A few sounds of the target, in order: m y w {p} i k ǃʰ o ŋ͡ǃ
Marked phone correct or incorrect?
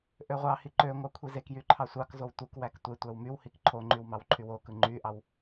incorrect